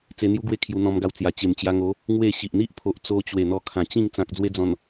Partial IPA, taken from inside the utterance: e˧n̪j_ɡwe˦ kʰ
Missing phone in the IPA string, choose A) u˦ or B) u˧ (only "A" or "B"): A